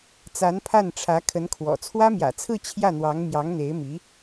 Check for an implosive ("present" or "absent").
absent